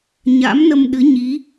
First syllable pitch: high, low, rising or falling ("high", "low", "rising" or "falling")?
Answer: rising